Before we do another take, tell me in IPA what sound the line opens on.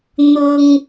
n̪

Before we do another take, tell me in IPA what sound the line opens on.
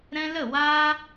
ɾ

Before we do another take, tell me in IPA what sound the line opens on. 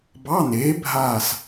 b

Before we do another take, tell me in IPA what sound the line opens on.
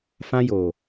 f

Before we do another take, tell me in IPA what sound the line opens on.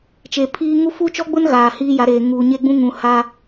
t͡ʃ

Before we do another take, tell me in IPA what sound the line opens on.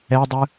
ɛ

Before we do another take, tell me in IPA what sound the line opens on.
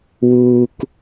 w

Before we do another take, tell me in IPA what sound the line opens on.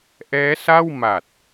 ʔ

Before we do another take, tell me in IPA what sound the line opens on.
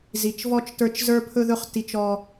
z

